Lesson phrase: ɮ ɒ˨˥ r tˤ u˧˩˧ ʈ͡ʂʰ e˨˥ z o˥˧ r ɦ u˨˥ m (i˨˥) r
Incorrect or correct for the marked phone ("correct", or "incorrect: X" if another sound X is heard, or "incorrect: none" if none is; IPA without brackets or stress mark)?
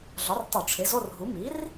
correct